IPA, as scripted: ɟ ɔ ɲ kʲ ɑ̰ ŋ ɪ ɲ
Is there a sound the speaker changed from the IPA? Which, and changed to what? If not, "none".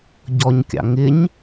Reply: none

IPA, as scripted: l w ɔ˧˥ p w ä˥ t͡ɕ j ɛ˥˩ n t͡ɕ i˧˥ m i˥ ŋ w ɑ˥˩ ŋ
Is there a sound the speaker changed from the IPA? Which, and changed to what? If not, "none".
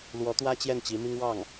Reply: p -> t̪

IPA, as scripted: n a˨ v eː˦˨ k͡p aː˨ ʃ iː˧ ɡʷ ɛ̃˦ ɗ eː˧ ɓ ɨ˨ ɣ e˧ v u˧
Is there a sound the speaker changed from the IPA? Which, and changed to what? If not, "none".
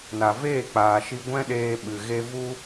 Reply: iː˧ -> i˧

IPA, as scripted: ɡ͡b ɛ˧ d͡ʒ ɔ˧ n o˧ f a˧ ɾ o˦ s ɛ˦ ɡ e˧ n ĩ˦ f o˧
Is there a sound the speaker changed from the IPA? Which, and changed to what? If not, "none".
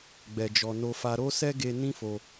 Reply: none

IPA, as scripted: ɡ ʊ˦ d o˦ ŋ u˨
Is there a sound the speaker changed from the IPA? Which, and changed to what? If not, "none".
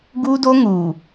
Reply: ʊ˦ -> u˦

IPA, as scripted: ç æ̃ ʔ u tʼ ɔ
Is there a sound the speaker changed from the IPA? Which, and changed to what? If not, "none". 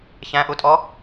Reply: none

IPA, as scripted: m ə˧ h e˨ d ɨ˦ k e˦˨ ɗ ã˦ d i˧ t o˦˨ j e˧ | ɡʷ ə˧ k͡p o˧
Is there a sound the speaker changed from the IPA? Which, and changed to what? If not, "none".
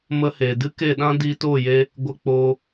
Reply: none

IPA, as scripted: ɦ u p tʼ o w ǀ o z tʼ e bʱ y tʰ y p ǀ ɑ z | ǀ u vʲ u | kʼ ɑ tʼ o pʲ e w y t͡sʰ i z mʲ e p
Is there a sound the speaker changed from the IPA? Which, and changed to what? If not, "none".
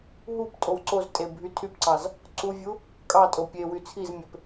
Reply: none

